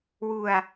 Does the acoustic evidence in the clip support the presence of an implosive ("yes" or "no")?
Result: no